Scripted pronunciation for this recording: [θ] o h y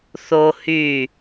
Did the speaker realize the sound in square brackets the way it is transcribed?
yes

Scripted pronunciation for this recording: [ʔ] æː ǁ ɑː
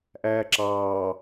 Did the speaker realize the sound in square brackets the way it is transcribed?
yes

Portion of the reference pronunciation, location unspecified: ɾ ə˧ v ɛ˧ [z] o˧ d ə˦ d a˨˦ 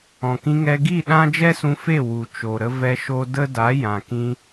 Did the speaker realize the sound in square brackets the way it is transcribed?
no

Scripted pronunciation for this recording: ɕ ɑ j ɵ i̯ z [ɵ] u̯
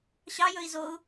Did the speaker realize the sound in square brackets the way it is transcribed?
no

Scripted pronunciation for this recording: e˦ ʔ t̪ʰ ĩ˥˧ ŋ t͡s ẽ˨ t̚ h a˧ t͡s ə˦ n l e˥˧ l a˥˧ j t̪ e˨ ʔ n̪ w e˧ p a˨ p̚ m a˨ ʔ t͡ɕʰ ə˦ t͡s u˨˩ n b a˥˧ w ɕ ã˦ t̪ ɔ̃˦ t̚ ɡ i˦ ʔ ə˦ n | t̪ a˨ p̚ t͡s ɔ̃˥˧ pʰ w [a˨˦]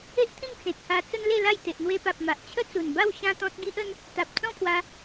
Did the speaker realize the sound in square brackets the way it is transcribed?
no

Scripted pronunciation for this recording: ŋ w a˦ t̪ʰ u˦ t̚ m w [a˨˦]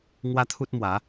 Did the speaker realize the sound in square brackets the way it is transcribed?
yes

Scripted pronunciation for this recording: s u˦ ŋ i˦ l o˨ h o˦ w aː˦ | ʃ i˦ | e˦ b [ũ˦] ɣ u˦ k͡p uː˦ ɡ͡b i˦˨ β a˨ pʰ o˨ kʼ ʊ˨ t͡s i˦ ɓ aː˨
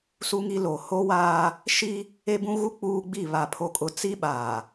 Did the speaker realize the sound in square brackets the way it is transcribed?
yes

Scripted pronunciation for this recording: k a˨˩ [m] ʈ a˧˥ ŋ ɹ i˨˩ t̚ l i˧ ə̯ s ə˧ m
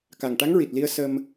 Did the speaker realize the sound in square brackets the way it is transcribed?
no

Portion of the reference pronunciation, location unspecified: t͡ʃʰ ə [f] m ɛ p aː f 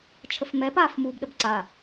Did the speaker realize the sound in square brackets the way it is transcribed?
yes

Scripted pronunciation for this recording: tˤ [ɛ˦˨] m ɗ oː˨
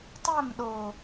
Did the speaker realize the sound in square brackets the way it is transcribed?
yes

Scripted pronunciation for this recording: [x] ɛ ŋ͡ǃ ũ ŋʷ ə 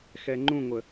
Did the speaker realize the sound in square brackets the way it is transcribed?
yes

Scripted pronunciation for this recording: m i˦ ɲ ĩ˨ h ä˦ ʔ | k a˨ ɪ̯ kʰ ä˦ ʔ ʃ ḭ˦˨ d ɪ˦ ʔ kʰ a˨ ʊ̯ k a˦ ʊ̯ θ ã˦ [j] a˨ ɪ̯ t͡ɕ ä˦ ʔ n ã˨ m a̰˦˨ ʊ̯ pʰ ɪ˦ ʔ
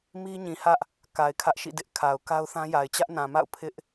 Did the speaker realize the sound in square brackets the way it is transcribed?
yes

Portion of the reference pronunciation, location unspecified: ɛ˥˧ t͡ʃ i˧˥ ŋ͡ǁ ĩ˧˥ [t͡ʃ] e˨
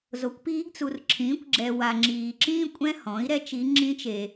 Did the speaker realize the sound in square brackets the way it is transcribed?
yes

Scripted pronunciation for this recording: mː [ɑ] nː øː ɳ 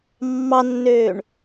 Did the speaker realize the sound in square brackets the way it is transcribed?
yes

